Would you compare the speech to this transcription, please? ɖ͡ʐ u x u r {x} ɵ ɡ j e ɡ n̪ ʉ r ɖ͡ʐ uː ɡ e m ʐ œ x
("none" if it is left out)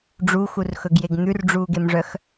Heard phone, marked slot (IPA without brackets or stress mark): x